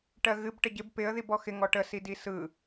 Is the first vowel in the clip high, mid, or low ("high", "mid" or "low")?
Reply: mid